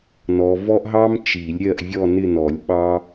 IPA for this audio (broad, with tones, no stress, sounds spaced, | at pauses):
n ɔ˨ v ɔ˦ ʔ ɦ ɑ˦ m t͡ʃ i˨˩˦ lʲ ɾʲ ɜ˦˨ ʔ vʲ ɔ˦˨ n ɪ˦˨ n ɔ˨˩˦ lʲ ɓ ɑ˦